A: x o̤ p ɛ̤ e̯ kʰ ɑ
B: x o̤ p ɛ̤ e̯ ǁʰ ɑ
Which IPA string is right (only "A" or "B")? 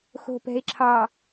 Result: B